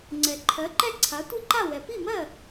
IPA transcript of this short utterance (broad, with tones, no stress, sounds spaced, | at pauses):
ŋ͡ǀ ɛ˩ ǃʰ ɜ˩˥ ǃ ɛ˥˩ ǀʰ a˩˥ tʷ i˥˩ ǃ a˥˩ w ɛ˩ p i˥˩ m ɜ˥˩